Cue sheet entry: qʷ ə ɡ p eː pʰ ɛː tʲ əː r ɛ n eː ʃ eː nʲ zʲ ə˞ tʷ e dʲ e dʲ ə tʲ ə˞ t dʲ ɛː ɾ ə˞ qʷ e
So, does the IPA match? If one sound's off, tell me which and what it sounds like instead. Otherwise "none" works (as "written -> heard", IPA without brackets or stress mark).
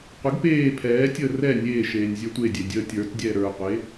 n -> nʲ